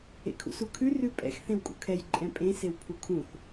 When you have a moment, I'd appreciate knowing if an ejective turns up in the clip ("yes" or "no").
yes